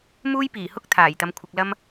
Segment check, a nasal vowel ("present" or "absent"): absent